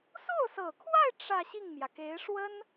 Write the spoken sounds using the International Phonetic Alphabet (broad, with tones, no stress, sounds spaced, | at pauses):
s o˥˩ ʊ̯ s ɤ˨˩ kʰ w a˥˧ ɪ̯ ʈ͡ʂ ä˥˧ ɕ i˥˩ ŋ m j ä˩ k e˧˥ ɪ̯ ʂ w ə˥ n